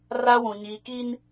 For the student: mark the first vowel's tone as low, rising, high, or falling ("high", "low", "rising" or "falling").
high